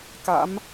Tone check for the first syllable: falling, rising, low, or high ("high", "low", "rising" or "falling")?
rising